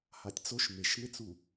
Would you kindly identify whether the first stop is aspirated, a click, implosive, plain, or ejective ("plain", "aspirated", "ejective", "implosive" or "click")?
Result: plain